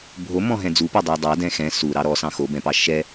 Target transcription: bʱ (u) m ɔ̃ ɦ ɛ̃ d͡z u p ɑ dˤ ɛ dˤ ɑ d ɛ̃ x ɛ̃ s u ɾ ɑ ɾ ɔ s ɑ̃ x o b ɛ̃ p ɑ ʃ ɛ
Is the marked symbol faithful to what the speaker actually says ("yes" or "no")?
no